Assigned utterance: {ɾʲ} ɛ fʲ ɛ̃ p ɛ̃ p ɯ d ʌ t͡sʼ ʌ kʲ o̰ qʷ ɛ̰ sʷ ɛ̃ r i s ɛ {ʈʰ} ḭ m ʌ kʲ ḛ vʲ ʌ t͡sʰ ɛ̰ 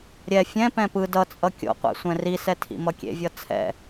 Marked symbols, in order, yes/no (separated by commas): yes, no